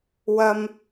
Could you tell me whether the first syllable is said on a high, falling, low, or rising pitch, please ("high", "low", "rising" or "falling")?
high